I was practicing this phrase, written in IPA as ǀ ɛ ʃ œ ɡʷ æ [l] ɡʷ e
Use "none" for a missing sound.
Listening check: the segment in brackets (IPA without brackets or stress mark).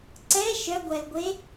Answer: l